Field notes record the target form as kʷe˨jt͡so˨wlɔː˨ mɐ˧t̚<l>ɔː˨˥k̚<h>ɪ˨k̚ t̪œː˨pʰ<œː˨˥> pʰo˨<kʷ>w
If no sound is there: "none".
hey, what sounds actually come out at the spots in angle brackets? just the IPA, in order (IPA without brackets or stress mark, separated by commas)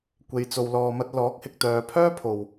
l, h, œː˥, none